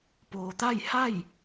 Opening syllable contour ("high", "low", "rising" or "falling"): low